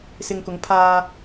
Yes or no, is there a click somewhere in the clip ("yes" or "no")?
no